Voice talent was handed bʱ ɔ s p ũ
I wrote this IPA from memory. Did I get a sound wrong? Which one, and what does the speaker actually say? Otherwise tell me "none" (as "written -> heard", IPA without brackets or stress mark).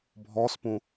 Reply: none